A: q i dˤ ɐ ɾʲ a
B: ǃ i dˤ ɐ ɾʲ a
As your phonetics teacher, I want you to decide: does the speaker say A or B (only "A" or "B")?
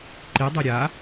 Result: B